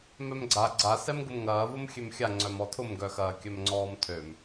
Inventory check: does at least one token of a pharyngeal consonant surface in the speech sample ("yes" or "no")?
no